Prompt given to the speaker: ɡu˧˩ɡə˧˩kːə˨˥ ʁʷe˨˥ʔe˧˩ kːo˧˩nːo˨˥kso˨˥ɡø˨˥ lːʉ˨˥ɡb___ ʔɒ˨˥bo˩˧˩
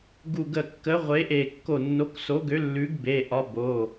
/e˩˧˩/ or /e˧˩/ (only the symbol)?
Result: e˩˧˩